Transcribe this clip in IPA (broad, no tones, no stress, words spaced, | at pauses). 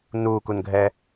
nuːkunɡʱɛ